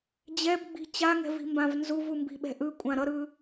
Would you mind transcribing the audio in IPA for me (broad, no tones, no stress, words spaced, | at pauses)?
d͡ʑɛbɡ͡bi̤ t͡ɕaŋɛ̤vi̤mbãv nzuvumbi̤ɓɛ̤ ʔɯkʷʼã ɾʌɾɯ